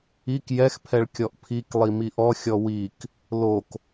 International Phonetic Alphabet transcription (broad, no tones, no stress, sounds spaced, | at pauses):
i k j ɛ x pʰ ɛ ɭ kʲ ɔ ʔ pʰ i k lˠ i m i ʔ ɔ xʲ ɔ w i k | l o k